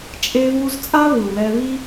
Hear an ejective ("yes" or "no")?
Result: yes